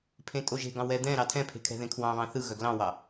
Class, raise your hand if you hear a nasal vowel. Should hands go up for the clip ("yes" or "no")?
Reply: yes